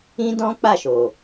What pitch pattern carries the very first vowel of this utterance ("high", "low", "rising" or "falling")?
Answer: high